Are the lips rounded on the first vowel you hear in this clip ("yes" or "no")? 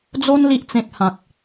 yes